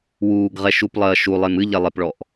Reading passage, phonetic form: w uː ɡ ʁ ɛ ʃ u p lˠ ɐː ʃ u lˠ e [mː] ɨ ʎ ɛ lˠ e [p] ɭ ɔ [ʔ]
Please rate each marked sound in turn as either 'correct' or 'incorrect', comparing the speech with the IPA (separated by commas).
incorrect, correct, correct